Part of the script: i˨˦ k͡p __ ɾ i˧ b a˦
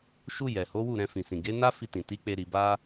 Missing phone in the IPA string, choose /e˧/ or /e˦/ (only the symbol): e˧